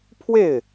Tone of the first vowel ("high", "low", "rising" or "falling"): falling